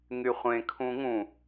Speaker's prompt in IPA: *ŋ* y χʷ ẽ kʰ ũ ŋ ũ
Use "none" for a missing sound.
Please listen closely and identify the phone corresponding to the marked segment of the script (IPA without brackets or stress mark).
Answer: ŋ